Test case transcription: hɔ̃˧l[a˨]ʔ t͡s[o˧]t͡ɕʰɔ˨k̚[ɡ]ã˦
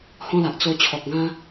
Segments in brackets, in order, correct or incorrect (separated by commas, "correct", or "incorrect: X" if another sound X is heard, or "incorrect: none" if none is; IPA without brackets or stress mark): correct, correct, correct